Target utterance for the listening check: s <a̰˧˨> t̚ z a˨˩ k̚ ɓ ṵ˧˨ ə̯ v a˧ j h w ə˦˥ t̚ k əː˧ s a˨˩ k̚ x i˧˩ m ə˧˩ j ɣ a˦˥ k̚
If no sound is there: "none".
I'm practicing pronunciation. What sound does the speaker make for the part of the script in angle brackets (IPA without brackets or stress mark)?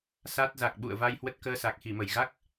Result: a˦˥